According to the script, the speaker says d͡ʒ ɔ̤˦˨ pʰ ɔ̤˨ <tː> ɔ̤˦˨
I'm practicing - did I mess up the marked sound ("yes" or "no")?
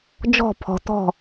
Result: yes